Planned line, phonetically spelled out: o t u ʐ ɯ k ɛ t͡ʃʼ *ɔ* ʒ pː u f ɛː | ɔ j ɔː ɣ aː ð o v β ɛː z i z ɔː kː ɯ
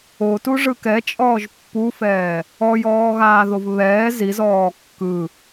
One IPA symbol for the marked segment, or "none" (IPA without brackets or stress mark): ɔː